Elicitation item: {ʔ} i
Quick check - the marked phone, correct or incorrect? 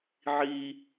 incorrect